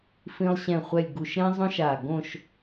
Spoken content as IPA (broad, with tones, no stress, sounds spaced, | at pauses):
f ĩ˧ lˠ ɕ ɛ̃˧˩ χʷ ɛ˧˩ lʲ ɡ u˧˩ ʃ ɾ ẽ˥ zˤ õ˥ ʃ a˧˩ ɡ õ˥˧ ʃ